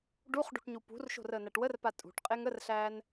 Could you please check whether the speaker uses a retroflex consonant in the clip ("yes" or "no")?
yes